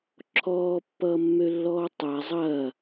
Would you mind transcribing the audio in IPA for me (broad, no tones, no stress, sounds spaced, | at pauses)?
ǁʰ ɔː pː ʌː mː ø lː ɔː tˤ a zˤ ɐː